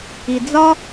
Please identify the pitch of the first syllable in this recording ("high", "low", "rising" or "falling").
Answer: low